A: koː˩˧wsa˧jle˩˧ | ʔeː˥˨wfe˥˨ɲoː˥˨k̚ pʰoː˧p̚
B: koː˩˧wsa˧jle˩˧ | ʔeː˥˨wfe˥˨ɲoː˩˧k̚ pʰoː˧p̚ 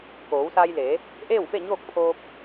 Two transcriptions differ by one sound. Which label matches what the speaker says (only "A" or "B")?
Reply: A